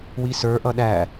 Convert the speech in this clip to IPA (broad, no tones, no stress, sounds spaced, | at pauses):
w i s ə˞ ʔ ʌ ɗ æ